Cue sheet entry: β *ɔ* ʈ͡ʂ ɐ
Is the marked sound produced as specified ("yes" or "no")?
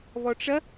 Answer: yes